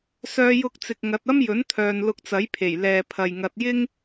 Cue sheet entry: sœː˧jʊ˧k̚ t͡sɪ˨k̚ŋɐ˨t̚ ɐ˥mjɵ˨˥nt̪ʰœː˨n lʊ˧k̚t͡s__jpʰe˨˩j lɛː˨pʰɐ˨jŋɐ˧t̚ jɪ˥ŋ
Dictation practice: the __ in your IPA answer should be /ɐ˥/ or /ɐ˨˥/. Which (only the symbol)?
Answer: ɐ˨˥